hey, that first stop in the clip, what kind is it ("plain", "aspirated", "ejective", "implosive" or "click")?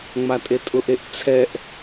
ejective